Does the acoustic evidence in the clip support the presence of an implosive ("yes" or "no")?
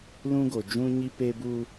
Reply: no